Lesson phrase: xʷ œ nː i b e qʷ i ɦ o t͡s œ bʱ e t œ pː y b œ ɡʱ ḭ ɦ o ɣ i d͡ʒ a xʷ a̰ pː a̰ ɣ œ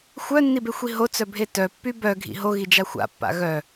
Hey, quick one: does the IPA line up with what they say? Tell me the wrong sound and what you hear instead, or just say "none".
qʷ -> xʷ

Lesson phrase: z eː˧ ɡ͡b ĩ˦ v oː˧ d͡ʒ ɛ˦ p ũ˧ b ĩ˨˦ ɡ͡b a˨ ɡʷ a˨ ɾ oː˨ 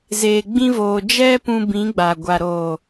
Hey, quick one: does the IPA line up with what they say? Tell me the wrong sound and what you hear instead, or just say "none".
none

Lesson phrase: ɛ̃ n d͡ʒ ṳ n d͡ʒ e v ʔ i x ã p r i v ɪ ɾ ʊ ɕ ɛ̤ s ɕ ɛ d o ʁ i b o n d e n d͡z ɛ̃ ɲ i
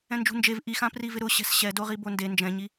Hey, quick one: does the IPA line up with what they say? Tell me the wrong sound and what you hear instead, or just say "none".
d͡z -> d͡ʒ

